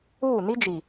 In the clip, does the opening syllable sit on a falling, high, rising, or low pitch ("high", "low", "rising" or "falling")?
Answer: falling